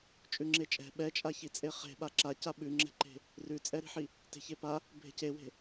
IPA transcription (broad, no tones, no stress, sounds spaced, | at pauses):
t͡ʃʼ ʉ ŋ͡ǁ e t͡ʃʼ ɛ̤ ɓ ɛ t͡ʃʼ a ç i t͡sʼ e χ e̤ ɓ a ǁ a c a ɓ ʉ ŋ͡ǁ ɛ̤ ǃ e̤ | r ʉ t͡sʼ ɛ ɾ i̤ ħ i | t e̤ ç e p a | bʱ e̤ c e w e̤